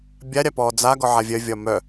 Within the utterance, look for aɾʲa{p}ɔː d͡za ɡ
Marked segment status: correct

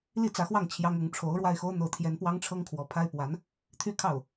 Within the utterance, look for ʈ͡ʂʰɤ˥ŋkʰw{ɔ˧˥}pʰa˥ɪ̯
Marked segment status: correct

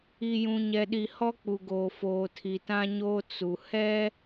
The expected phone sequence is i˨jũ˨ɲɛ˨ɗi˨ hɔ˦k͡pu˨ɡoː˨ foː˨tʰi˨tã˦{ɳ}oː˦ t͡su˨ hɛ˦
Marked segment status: incorrect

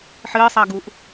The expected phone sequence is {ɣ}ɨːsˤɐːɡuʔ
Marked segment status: incorrect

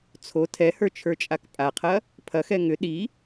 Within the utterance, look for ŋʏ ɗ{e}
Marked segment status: incorrect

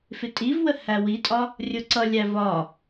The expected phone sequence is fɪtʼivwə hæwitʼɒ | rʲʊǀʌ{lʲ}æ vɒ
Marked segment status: correct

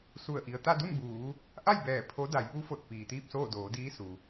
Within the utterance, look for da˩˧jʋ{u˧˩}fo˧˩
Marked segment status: incorrect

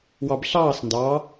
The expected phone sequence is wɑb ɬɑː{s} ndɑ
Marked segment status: correct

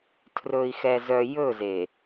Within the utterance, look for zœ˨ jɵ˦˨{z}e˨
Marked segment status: correct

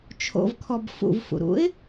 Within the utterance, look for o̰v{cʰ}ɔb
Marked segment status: incorrect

